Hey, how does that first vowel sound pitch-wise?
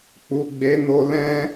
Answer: low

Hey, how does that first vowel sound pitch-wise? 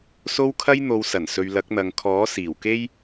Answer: high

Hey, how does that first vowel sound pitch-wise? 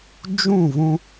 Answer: falling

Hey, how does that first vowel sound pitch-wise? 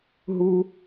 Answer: low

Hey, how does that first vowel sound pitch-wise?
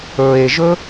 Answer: low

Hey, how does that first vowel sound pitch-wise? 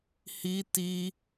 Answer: high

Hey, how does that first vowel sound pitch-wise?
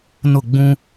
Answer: falling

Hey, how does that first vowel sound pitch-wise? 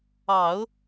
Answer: low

